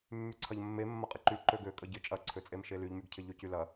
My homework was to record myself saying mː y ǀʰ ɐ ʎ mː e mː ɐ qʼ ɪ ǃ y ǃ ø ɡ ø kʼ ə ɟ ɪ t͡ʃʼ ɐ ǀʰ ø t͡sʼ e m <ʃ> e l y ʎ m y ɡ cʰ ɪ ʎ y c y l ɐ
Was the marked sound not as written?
no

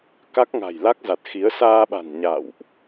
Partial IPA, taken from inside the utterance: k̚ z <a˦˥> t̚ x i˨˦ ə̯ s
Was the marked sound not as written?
yes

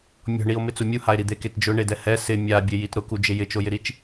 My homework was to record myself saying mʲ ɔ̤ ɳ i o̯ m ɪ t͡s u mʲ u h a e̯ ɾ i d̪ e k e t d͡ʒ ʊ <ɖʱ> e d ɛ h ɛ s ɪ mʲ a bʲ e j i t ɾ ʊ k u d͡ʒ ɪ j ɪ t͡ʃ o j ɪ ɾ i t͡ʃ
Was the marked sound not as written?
yes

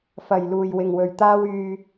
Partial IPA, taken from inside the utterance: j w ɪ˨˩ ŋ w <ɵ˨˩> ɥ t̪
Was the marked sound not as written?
no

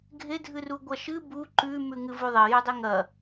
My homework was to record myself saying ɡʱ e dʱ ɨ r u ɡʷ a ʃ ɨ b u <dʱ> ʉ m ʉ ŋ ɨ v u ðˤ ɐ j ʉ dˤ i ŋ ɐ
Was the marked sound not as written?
yes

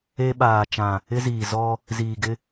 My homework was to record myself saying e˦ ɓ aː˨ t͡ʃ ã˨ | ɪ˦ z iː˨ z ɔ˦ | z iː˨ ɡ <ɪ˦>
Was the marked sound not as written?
no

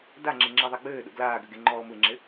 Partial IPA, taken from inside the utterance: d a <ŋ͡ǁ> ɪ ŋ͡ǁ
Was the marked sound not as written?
no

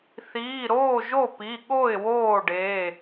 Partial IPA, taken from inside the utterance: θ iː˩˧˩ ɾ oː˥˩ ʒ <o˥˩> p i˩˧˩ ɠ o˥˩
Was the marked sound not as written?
no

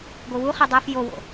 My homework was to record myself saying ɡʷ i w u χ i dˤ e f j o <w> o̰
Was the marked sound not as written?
no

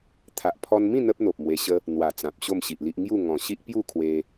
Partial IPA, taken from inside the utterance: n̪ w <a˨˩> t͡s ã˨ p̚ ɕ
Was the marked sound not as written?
no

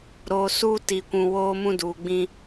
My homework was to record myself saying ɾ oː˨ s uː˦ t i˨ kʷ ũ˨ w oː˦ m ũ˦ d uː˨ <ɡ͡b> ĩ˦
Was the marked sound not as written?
no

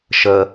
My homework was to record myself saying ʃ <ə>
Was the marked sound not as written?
no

